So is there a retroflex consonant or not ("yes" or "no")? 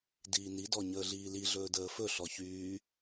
no